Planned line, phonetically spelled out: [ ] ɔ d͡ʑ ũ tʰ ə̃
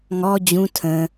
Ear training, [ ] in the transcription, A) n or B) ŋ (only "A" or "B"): B